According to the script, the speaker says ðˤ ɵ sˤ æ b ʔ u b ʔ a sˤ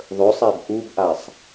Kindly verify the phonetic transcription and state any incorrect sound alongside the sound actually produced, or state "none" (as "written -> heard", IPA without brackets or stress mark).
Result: none